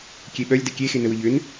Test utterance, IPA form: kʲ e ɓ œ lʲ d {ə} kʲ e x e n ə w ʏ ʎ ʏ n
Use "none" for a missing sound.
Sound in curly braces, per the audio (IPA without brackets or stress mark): ə